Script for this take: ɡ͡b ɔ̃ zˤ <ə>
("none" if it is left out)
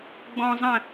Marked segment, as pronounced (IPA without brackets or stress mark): ə̃